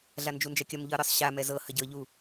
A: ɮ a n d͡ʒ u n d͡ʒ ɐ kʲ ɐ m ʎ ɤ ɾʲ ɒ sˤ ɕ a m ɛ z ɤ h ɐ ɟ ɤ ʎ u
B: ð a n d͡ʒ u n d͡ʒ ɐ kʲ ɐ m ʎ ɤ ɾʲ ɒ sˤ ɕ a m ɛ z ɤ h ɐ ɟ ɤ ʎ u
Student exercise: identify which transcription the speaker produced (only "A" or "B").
A